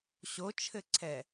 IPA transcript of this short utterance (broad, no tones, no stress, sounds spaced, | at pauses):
ɕ o t͡ʃʰ ɘ ǀʰ ɛ